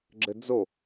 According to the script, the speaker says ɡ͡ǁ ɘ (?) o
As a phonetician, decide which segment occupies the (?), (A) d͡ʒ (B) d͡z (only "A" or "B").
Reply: B